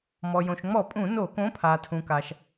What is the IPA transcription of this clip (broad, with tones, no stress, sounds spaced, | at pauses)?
m ɔ˩ j õ˩ ʃ ŋ͡m ɔ˧˩˧ pʼ ũ˧˩˧ n o˧˩˧ k õ˨˥ pʰ aː˩ tʰ ũ˩ k a˩ ʃ